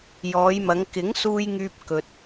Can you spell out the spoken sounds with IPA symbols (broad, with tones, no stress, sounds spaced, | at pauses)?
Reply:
j ɔː˨˧ j m ɐ˨˧ ŋ k ɪ˨˥ ŋ s uː˧ j ŋ yː˧ p̚ k ɵ˨ t̚